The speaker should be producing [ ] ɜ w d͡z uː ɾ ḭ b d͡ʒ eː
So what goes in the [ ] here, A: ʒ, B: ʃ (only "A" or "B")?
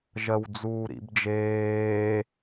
A